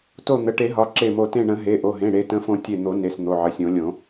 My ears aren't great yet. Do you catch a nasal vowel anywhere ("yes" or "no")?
yes